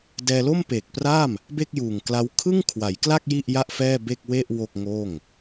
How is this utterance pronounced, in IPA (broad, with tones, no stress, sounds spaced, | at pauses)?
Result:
d ɛː˧ l o˥˩ m p eː˨˩ k̚ p r a˥˩ m | b e˥˩ k̚ j uː˨˩ ŋ k l a˦˥ w kʰ ɯ˥˩ ŋ kʰ w a˩˦ j k l a˥˩ k̚ j i˥˩ ʔ j a˥˩ ʔ f ɛː˥˩ b e˥˩ k̚ w e˥˩ ʔ w o˥˩ k̚ ŋ oː˥˩ ŋ